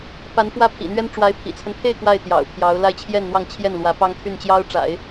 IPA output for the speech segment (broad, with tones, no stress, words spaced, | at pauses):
pa˧˥nfwä˥˩pʰḭ˨˩n̪ɥɛ˥n ʈ͡ʂwa˧˥ɪ̯pʰḭ˨˩t͡sʰə˦npʰe˥˧ɪ̯ kwa˥˩ɪ̯t̪jɑ̰˨˩ʊ̯pʰjɑ˧˥ʊ̯ la˥˧ɪ̯ t͡ɕʰjɛ˥˧nn̪wɑ˥˧ŋ t͡ɕʰjɛ˥˩nlwä˧˥pɑ˥ŋ t̪ʰy˥˩nt͡ɕjɑ˥ʊ̯ʈ͡ʂa̰˨˩˦ɪ̯